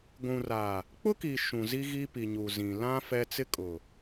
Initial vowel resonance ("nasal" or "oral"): nasal